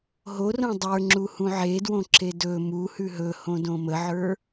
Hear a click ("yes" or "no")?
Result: yes